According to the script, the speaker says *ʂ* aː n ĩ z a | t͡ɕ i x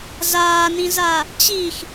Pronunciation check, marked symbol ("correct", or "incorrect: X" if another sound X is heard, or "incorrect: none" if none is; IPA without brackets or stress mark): incorrect: z